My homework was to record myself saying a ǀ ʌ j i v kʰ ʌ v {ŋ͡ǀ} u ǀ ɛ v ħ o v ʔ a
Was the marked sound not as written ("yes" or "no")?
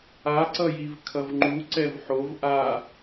yes